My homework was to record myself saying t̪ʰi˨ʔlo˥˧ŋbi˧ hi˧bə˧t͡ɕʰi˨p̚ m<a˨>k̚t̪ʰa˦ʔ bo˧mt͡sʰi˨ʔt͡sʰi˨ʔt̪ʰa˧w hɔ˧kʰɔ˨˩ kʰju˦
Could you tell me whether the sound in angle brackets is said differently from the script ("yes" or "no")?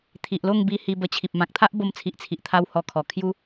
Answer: yes